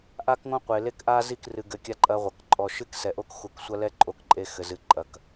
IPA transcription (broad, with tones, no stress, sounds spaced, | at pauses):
ʔ a˦ k ŋ õ˦ qʷ e˨ l e˦ k ʔ a˦ z i˦˨ k r ɨ˨ ɡ ɘ˨ kʲ a˦ ǃʼ ɐ˦ ʁʷ ɐ˨ k ǃʼ ɔ˨ ʃ ɨ˦ k s ɛ˨ ʔ o˦ k x u˨ k sʷ ɐ˦ l ɛ˦ ǃʼ o˦ k ǃʼ e˦ x ɘ˨ z ɨ˨ ǃʼ ɐ˨ k